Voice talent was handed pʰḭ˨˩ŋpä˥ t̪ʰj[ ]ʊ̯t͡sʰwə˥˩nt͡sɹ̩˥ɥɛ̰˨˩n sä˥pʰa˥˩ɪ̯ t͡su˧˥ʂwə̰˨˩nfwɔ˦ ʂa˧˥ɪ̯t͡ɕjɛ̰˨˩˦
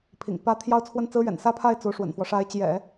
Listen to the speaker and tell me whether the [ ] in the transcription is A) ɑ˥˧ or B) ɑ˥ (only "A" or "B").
A